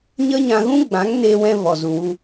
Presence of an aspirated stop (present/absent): absent